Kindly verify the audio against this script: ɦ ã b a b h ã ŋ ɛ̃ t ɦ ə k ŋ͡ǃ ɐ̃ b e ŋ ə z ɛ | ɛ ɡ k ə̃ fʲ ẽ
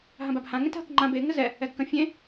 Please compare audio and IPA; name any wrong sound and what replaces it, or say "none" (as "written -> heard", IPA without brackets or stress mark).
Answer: ɐ̃ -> ã